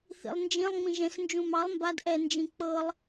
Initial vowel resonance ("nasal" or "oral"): oral